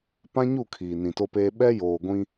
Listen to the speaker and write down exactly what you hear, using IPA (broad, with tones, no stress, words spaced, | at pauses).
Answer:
pã˦ɲu˦˨ kʰiː˨nĩ˨to˦peː˦ ɓɛ˦joː˨ɡʷĩ˦